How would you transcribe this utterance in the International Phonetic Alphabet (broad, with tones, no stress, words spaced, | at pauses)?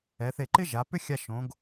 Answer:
ɛ˩˧θe˧˩ǃɪ˥ ʒa˩˧ pʏ˥xʲa˧ ʃõ˩˧ɡ